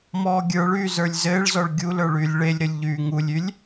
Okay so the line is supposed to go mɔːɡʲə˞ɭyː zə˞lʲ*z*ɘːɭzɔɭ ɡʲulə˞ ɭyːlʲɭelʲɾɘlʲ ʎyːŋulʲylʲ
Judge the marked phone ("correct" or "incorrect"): correct